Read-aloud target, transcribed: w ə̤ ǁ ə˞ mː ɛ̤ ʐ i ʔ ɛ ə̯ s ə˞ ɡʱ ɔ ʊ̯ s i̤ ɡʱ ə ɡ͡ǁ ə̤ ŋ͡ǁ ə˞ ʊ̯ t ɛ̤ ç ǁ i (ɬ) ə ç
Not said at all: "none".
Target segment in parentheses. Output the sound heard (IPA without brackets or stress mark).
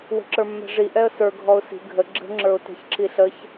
ɬ